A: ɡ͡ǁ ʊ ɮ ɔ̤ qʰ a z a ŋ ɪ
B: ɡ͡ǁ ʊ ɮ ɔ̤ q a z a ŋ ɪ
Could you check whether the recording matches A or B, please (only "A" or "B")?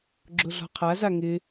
A